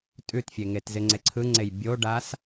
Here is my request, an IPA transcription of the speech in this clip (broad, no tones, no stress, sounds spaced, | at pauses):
tʼ ʉ t fʲ e ŋ e t z ɪ ŋ͡ǀ e ǀʰ ɯ ŋ͡ǀ e j bʲ o ɖ a s